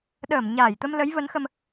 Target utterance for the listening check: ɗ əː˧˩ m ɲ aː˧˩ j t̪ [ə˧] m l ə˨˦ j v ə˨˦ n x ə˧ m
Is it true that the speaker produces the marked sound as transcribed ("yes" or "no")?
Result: yes